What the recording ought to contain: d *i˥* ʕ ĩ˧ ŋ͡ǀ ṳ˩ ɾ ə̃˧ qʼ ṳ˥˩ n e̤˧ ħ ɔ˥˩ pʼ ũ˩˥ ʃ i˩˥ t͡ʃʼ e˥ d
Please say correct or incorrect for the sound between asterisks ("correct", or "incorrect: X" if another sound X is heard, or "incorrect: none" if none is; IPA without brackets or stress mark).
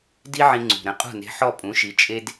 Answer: correct